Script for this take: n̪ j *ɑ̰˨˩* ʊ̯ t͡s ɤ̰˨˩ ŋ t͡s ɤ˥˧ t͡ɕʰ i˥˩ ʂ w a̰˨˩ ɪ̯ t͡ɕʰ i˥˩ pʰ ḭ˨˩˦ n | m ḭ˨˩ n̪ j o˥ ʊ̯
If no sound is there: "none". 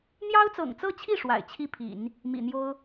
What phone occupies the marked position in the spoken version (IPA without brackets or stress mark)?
ɑ˥